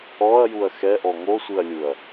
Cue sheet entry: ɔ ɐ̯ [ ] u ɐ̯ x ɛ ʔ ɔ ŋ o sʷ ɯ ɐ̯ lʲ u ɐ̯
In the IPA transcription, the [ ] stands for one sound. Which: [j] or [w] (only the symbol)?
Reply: j